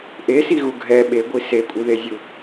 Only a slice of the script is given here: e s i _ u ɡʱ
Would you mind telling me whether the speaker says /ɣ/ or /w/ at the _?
ɣ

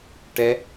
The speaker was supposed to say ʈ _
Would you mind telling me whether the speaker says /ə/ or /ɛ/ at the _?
ɛ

